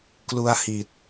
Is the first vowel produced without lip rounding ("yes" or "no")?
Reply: no